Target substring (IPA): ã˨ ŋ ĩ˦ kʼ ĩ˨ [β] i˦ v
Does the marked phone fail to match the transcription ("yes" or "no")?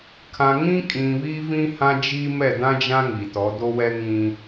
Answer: no